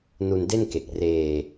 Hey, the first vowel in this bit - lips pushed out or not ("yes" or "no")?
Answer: yes